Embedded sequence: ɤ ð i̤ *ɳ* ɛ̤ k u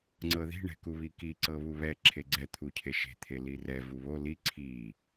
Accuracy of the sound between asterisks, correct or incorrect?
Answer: correct